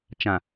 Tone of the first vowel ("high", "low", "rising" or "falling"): low